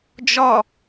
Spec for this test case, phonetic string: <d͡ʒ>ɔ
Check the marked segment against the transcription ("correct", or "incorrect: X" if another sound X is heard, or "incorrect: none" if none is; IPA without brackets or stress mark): correct